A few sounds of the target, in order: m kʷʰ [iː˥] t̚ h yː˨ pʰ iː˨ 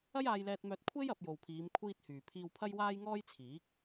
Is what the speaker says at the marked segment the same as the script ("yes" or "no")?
yes